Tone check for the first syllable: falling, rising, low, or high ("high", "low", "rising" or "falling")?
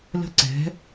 falling